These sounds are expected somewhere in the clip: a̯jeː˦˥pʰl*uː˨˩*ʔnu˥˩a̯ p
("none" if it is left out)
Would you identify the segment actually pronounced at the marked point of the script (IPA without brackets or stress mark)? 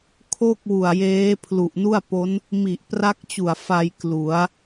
u˨˩